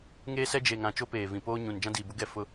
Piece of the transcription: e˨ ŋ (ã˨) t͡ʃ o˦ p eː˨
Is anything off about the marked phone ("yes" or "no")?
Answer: no